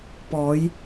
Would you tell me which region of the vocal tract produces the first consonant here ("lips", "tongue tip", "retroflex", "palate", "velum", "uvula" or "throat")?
lips